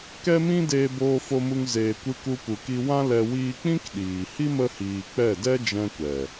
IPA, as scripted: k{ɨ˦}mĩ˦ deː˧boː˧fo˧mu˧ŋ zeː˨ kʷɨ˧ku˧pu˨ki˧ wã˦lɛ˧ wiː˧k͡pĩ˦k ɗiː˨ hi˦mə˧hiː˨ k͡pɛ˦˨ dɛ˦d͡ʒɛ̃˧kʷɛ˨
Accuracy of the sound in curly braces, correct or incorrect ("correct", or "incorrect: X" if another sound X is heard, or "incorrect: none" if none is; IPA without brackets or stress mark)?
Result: incorrect: ɛ˦